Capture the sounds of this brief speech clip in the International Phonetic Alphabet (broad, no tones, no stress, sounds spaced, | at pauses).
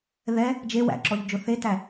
ð ɛ | d͡ʒ e w æ̰ ǁ ɔ ʎ d͡ʒ ʊ θ e t æ